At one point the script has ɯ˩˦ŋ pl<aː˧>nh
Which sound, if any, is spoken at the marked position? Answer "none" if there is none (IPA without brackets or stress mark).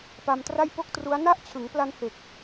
a˧